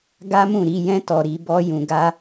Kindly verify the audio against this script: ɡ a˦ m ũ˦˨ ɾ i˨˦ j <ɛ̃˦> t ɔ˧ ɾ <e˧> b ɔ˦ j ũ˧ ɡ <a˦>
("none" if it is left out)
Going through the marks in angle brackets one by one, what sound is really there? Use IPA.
ɛ̃˦, i˧, a˦

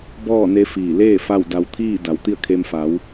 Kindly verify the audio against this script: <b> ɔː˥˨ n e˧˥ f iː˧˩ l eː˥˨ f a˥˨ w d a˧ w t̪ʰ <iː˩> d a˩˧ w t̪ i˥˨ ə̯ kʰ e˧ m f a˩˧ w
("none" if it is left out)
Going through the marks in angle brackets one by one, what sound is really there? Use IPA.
b, iː˥˨

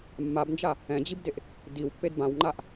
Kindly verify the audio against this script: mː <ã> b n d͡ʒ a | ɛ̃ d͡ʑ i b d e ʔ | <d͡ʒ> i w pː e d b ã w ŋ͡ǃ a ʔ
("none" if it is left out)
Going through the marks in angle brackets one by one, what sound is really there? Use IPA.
a, d

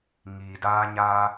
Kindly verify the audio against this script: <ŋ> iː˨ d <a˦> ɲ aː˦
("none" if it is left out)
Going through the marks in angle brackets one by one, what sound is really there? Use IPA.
ŋ, aː˦

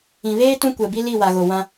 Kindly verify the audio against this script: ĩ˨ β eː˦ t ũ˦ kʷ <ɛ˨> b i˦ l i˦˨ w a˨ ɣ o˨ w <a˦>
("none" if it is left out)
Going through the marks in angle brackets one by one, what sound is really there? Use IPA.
ɛ˨, ã˦

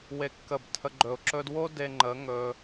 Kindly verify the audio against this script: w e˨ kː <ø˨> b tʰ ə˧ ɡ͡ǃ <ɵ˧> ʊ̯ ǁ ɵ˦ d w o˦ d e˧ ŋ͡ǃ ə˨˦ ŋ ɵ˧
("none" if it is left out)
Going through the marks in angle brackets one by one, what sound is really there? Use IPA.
ə˨, ɵ˨

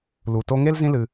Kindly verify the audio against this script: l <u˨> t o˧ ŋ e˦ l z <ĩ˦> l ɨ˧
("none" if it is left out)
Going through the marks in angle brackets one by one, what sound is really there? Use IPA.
u˨, ĩ˦

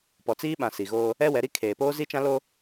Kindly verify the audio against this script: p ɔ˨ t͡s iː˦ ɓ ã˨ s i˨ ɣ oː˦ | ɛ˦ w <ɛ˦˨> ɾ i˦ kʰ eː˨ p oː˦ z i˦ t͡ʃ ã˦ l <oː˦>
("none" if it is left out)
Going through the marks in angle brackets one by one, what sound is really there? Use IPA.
ɛ˨˦, o˦

